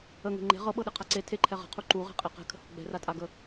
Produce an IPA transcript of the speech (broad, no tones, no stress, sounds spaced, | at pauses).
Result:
ə ŋ e̤ ŋ͡ǃ e̤ ʁ ɤ ɓ ɤ ɗ e qʰ a ǀ e tʰ e ǃʰ ɛ ʁ ə̤ qʰ u ǃ u ʁ e̤ qʼ ɛ q ɛ̤ kʰ ə̤ h ṳ ɡ͡b ɛ̤ r a tʼ a ɡ ə